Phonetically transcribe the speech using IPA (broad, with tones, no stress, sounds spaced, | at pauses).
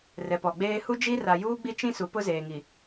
r ɛ˨ p ɔ˨ ɡ͡b eː˦ h u˦ d͡ʒ i˦ r a˨ j uː˦ ɡ͡b i˦ t͡ʃ ĩ˦ s u˨ p ʊ˦ z eː˨ ŋ i˨